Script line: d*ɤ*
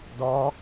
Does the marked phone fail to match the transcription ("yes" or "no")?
yes